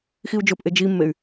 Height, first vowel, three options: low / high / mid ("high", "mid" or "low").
high